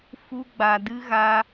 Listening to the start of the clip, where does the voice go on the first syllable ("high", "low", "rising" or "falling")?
high